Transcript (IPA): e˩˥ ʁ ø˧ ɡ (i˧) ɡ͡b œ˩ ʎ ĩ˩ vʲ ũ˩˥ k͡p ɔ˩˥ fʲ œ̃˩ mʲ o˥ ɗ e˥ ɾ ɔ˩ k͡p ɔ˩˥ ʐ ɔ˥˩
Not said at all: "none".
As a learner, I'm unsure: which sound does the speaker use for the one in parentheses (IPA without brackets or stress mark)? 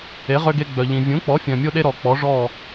e˧